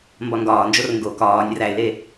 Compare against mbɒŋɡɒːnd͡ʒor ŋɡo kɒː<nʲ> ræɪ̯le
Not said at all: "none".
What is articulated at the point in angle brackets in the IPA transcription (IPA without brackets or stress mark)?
nʲ